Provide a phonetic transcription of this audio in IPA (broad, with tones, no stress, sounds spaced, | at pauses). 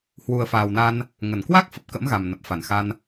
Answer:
h w u˨˩ ə̯ f aː˨˩ w n a˧ n | ŋ ə˧˩ n k w a˦˥ k̚ f ə˨˩ p̚ k ə̰˧˥ m ɣ a˨˩ m n ə˨˩ p̚ f a˧˩ n x a˧ n